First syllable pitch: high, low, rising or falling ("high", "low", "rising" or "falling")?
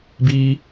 high